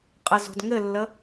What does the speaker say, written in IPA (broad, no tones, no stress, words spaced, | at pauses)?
qʼəzo̤d ŋɘlːə